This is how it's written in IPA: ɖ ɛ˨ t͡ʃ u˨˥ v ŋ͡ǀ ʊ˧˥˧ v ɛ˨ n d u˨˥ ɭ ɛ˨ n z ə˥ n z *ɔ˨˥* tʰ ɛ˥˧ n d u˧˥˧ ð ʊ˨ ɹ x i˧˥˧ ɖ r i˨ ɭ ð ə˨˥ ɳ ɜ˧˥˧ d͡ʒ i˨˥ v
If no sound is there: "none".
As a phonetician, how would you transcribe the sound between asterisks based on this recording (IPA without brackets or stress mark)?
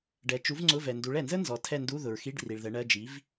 ɔ˨˥